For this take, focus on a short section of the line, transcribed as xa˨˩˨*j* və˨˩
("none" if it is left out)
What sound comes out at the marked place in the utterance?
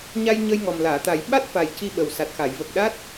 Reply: j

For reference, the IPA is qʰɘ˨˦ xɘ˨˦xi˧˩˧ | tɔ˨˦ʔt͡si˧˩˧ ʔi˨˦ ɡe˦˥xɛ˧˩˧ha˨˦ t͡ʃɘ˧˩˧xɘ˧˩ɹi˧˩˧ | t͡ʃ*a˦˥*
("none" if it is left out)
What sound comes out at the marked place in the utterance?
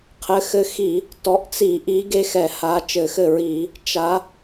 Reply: a˨˦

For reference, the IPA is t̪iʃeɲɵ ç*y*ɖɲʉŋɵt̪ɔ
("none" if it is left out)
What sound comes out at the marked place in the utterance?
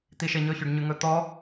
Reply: y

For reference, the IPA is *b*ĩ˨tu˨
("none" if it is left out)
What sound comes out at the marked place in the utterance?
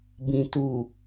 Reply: b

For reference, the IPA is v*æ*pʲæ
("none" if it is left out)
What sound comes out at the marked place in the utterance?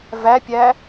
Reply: æ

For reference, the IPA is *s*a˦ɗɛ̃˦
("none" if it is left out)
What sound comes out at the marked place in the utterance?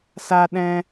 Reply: s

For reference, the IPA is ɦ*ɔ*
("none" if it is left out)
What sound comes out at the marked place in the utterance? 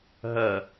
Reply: ʌ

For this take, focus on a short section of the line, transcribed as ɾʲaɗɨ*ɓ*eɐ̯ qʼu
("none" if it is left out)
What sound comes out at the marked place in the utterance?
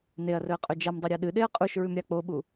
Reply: ɗ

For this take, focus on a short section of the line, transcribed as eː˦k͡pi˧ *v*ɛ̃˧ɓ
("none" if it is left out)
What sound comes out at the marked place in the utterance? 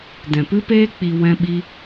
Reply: w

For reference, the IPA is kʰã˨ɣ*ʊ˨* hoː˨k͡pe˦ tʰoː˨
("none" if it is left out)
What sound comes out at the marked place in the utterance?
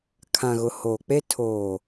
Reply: ʊ˨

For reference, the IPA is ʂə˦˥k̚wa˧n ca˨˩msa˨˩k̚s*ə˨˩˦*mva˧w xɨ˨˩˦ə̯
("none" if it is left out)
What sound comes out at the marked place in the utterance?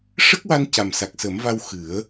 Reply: ə˨˩˦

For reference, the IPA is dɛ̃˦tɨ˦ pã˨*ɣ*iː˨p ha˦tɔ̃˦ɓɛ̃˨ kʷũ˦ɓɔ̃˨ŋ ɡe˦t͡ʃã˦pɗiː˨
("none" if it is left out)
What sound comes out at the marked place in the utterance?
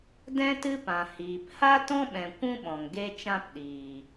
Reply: h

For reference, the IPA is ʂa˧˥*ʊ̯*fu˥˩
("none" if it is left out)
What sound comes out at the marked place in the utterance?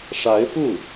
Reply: ɪ̯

